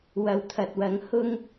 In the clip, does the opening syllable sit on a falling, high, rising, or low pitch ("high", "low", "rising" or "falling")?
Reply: low